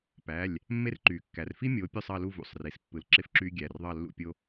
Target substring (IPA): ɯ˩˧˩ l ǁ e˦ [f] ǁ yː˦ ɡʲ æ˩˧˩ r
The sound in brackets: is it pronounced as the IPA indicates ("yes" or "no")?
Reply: yes